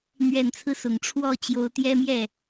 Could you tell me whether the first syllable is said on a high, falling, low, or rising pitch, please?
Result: low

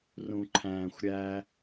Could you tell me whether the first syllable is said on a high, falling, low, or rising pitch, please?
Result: low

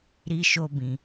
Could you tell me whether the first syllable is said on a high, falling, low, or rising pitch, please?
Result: high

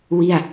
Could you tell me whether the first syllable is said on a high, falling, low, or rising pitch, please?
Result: falling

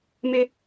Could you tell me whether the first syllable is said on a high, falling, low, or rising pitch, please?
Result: high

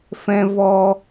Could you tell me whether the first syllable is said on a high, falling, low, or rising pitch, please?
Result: high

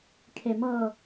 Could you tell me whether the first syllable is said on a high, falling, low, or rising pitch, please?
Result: low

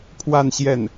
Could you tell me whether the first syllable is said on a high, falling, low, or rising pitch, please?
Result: falling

